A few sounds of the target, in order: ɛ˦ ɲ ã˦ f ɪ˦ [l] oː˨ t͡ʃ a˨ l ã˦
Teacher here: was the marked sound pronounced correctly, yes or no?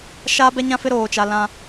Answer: no